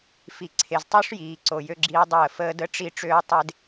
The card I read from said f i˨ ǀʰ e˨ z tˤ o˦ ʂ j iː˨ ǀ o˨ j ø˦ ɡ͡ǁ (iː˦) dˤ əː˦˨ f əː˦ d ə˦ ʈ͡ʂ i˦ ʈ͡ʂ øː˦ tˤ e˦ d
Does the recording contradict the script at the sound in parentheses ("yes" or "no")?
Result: no